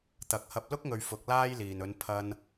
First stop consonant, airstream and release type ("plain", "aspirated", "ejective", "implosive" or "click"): plain